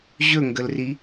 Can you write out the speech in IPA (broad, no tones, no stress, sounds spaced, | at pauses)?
ʑ ɵ ŋ ɡ ə l r i